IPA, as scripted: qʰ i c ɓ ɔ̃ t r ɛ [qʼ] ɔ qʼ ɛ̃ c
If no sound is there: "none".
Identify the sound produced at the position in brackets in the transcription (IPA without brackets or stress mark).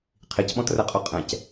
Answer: qʼ